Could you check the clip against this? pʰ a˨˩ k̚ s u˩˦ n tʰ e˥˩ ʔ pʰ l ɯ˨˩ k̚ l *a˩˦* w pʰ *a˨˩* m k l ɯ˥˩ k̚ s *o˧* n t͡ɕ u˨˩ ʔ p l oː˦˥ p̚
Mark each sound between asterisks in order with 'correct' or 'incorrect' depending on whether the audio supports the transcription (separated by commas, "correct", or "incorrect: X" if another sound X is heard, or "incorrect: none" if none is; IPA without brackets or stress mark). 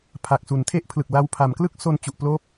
incorrect: a˧, incorrect: a˩˦, correct